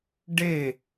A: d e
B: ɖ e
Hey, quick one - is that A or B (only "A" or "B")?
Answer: B